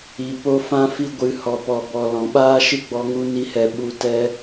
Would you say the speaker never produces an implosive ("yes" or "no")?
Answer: no